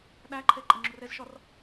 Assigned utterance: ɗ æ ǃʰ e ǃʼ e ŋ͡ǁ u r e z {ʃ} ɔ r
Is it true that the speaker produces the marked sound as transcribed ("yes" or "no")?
yes